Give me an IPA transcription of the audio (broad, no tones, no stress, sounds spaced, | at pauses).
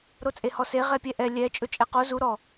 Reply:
ɾ o t͡sʼ e h ɔ s e ʁ ɛ pʲ ɛ ʔ ɛ lʲ ɛ t͡ʃʼ ɵ t͡ʃʼ ɛ q o z u ɾ ɔ